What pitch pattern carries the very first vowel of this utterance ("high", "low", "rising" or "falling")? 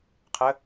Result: rising